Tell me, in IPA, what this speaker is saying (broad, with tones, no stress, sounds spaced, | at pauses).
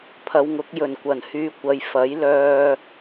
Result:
pʰ ɐ˨˧ w ŋ ʊ˨˥ k̚ j ɵ˨˩ n kʷ ɐ˨˩ n h yː˨˧ kʷ ɐ˨ j f ɐ˨˥ j l œː˧